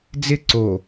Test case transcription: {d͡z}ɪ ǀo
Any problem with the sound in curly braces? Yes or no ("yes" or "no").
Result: no